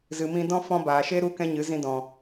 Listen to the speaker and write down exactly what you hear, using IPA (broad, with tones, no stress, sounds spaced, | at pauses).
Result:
z ɨ˨ m ĩ˧ d ɔ̃˦ f ɔ̃˦ b aː˨ ʃ e˦ ɾ u˦ k ɛ̃˦ ɲ ɨ˨˦ z ĩ˧ d ɔ̃˨